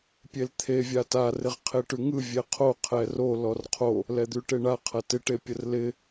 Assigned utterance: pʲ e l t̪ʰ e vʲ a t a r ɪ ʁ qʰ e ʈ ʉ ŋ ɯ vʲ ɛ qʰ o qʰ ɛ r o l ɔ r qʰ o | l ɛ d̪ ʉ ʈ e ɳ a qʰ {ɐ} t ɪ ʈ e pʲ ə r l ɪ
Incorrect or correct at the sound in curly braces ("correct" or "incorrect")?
correct